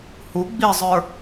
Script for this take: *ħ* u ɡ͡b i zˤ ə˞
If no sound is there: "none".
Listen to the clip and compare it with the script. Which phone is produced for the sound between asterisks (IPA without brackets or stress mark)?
h